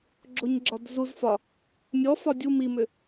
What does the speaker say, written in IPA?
ɡ͡ǁ o ɲ ɡ͡ǁ ɒ d z u z f ɒ | nʲ ɔ f ɒ dʲ u m i m ʏ

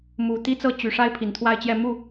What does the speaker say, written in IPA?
m u˨˩ t̪ i˥ t͡s ɤ˥˩ t͡ɕ y˨˩ ʂ a˥ ɪ̯ pʰ i˨˩ n t̪ʰ w a˥˧ ɪ̯ t͡ɕ j ɛ˥˧ m u˥˩

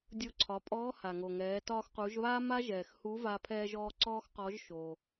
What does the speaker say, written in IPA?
dʲ o˧ ǀʰ ɒ˩˧ pʼ ɔː˧˥ h a˩ ŋ o˩ ŋ ɛː˩˧ t ɒː˧ x q u˩˧ ʒ β aː˥ m a˥ ʒ ɛː˩ x h u˧˥ v a˧ pʰ ɛː˧ ʒ ɔː˧ ǀ ɔː˥ x q ɔ˧˥ ʒ ʃ o˩

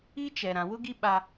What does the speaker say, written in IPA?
i˦ t͡ʃ ɛ˨ ɾ ã˨ w ʊ˦ ɡ i˦ ɓ a˦

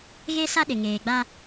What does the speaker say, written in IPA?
ɣ e˦ s a˦ ɗ ɪ˨ ŋ eː˨ ɡ͡b a˦

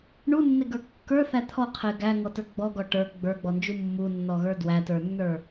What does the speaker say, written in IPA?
ɳ u nː e ɡ ə˞ kː ə˞ θ æ t̪ʰ ɔ qʰ e ɡ æ ŋ ɔ t ə˞ ɡ͡b ɔ ɡ ɔ ʈ ə˞ ɡ͡b ə˞ ɡ͡b ɔ n d͡ʒ u mː u nː ɔ ɣ ə˞ d w æ t ə˞ nː ə˞

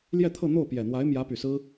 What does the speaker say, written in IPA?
l j ɛ˥˧ t̪ʰ ɤ˥˧ n̪ o˥˩ ʊ̯ p j ɛ˨˩ n̪ w a˧˥ ɪ̯ m j ä˧˥ p y˨˩ s ɹ̩˥

